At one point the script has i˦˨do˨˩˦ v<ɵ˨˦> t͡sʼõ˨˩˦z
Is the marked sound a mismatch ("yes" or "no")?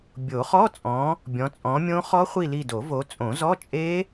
yes